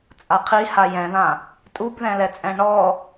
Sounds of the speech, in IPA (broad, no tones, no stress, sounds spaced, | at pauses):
t͡sʼ a qʰ i h a j ɛ̃ ð ã | tʼ u b ð ɛ̃ l ɛ t͡sʼ ɛ̃ ɳ ɔ